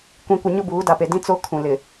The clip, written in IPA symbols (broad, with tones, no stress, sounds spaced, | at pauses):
kʷ ĩ˨ kʷ ɪ˨ ɲ ʊ˦ b uː˨˦ d a˨ p e˨ d ĩ˦ t͡s o˦ kʰ ũ˨ l ɪ˨